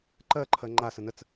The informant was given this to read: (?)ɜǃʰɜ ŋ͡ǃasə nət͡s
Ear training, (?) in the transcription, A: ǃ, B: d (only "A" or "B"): A